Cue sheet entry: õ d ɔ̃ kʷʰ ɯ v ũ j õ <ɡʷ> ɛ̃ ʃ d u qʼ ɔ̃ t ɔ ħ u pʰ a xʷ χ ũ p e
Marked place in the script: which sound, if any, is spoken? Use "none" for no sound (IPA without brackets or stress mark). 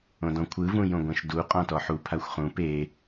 ɡʷ